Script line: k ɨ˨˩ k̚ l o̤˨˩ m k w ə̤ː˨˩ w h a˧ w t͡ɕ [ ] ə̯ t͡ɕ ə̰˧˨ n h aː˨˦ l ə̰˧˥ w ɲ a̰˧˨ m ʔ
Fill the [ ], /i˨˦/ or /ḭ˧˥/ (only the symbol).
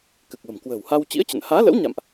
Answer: ḭ˧˥